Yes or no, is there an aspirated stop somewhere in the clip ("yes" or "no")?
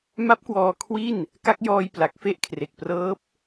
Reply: yes